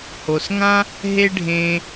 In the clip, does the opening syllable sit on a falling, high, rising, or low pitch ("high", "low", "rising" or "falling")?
low